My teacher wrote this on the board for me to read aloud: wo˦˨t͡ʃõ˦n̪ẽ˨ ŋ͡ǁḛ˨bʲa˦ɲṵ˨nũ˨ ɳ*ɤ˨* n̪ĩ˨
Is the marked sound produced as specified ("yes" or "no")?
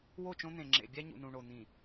no